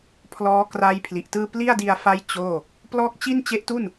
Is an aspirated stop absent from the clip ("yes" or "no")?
no